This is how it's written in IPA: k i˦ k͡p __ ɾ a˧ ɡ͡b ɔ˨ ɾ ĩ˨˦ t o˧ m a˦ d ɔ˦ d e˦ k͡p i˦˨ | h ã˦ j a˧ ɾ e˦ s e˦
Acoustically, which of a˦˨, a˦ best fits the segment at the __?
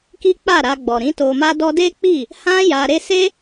a˦˨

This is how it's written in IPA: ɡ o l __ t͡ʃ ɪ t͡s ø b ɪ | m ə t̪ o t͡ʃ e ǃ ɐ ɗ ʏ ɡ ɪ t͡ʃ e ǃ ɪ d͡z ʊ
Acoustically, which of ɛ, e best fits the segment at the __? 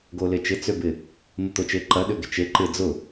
e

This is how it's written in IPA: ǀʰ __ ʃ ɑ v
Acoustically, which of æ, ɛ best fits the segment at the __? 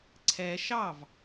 ɛ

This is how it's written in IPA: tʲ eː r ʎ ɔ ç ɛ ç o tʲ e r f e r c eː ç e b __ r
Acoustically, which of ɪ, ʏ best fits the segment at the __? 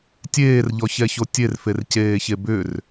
ʏ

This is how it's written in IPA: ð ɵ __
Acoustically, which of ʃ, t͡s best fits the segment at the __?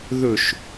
ʃ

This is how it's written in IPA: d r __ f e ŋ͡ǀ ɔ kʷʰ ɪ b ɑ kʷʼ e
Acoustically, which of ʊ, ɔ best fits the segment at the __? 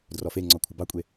ɔ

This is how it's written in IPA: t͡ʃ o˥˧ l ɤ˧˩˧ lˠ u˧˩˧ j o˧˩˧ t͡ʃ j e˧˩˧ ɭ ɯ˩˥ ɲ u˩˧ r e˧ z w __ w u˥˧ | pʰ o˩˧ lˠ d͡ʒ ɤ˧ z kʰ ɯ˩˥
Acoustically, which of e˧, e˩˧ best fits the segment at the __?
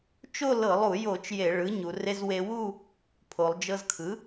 e˧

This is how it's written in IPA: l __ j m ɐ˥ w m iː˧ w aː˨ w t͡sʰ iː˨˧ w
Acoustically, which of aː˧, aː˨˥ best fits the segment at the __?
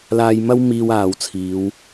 aː˧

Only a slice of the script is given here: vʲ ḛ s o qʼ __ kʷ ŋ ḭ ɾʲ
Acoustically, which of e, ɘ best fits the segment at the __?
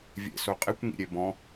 e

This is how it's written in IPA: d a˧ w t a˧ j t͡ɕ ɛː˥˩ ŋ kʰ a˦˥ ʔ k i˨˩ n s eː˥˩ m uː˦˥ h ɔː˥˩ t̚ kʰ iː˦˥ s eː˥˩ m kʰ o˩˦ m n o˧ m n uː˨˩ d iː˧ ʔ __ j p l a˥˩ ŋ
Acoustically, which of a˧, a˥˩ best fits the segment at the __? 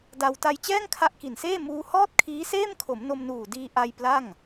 a˧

